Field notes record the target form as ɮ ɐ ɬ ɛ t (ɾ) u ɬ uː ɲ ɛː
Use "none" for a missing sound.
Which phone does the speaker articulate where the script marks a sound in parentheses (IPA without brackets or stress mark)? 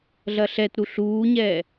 ɾ